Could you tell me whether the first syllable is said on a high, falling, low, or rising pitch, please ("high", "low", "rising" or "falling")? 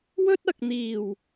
high